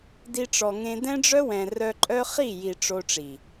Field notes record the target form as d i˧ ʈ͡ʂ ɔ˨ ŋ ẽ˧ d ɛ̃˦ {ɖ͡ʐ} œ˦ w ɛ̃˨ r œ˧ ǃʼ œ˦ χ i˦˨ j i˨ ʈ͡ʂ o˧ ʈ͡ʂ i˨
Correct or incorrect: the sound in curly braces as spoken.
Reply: correct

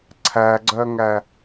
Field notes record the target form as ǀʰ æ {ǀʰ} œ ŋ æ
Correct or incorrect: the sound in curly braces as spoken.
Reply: incorrect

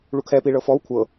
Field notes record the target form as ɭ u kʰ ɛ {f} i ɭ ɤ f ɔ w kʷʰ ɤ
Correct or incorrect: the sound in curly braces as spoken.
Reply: incorrect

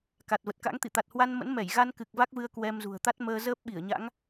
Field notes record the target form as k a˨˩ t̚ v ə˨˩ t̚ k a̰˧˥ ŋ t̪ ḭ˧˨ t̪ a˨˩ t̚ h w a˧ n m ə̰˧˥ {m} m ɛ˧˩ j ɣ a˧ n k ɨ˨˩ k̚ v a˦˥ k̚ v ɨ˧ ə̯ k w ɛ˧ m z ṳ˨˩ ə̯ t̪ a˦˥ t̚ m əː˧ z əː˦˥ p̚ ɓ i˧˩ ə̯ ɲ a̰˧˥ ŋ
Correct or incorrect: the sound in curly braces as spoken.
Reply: incorrect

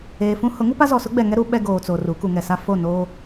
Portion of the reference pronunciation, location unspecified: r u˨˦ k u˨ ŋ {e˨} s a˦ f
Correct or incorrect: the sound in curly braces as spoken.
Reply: incorrect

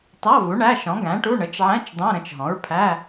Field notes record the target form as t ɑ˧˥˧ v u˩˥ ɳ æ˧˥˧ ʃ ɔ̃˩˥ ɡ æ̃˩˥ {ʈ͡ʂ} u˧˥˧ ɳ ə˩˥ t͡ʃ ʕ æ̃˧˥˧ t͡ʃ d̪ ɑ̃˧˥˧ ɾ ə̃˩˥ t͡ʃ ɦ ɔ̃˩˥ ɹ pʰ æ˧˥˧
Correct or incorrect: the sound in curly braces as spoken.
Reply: incorrect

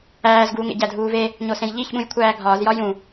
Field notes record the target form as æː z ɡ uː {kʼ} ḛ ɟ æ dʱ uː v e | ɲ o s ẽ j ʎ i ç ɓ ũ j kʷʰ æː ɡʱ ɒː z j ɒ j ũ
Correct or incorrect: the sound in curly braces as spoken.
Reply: incorrect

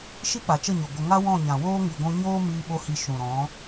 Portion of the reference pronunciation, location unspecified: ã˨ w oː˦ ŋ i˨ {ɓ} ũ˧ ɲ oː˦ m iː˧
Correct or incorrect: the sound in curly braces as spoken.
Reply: incorrect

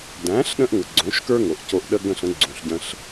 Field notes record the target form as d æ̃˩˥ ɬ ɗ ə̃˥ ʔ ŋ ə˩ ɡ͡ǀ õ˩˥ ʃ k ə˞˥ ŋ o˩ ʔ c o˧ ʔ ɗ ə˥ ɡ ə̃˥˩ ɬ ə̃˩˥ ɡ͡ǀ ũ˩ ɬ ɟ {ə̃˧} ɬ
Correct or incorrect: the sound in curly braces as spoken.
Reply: correct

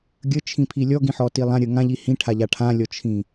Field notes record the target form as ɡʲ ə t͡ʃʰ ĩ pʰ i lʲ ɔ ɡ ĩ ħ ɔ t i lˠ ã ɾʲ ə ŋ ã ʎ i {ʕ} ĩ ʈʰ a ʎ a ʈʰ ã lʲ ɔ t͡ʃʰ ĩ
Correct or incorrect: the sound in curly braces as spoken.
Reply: incorrect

